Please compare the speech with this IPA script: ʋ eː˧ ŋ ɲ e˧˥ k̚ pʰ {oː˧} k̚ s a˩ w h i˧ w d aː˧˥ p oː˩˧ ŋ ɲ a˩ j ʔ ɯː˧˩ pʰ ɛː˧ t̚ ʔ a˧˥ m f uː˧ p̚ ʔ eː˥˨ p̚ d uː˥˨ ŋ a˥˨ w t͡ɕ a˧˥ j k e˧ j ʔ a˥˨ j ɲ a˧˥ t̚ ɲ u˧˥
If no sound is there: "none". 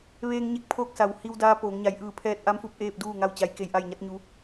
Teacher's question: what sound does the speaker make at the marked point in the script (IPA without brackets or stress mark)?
oː˧